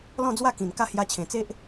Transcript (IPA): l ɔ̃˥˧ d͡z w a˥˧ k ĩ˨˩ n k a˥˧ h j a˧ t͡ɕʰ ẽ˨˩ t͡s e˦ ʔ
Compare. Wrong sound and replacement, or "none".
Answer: none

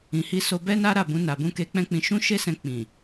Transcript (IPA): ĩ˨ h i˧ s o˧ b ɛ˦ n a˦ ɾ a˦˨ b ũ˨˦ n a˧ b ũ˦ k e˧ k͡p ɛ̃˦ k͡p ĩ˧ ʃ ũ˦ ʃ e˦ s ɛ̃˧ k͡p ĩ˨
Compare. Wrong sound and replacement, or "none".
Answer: none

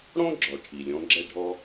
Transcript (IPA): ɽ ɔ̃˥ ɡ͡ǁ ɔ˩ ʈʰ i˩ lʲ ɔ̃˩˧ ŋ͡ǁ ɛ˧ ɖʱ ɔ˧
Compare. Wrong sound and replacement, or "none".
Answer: ŋ͡ǁ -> ɡ͡ǁ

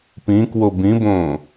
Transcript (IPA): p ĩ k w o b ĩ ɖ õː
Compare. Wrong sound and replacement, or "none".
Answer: ɖ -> b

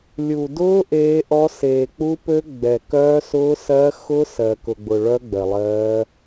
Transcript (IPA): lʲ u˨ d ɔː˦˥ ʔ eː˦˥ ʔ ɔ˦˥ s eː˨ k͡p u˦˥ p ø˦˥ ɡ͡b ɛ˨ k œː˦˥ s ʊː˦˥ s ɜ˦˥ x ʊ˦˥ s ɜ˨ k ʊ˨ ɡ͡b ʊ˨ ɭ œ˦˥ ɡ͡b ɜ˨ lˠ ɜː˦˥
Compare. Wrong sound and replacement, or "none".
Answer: ɔː˦˥ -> ʊː˦˥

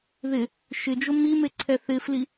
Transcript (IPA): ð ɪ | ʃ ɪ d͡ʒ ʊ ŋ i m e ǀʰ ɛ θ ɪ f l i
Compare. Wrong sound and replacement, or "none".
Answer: ŋ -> m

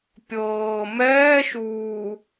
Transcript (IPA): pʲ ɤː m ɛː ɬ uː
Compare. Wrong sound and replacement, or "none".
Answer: ɬ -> ʃ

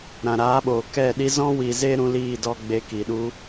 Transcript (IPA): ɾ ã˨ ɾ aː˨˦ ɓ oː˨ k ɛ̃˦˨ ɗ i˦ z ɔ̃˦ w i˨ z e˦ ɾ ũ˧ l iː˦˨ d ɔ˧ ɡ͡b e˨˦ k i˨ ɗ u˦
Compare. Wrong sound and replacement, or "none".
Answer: ɛ̃˦˨ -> ɛ˦˨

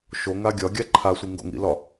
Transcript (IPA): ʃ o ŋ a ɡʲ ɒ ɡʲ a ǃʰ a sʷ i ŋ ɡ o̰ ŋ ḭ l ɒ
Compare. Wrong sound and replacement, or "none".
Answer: none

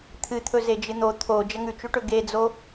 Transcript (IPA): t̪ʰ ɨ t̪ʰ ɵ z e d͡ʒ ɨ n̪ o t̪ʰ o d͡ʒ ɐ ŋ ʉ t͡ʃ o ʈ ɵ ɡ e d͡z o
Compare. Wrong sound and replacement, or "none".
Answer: none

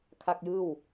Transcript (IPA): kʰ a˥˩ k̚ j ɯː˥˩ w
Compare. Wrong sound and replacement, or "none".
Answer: none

